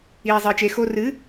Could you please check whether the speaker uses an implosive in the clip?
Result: no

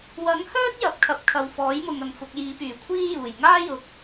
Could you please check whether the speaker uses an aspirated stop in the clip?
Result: yes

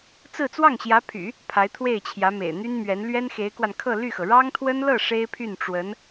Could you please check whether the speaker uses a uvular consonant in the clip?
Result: no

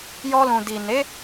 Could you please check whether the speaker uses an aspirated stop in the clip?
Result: no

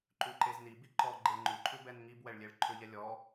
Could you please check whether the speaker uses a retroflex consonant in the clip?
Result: yes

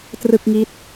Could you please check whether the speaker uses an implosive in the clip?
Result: no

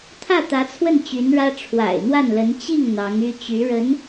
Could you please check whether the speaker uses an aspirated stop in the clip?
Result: yes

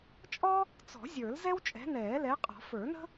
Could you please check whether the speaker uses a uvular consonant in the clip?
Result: yes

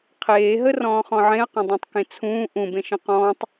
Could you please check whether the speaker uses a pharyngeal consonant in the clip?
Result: yes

